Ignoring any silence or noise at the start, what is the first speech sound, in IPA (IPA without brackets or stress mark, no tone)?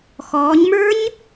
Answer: x